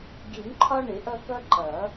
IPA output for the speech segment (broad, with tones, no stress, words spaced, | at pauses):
ɡi˨˩˦nǃʰɒ˦ɳɪ˨˩˦ ʔʌ˦kʌ˦ ǃʌ˨˩˦